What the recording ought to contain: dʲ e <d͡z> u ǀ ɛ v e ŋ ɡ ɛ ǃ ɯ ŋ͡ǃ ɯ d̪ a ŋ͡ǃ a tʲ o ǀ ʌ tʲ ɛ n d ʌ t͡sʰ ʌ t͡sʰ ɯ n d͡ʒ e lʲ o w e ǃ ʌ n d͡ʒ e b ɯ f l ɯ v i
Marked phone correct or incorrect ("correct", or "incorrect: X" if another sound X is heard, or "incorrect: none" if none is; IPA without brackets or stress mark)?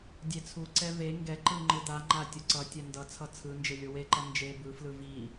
incorrect: t͡sʰ